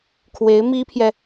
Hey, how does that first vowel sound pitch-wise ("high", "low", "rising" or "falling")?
rising